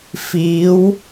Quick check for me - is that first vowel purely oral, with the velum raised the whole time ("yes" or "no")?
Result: yes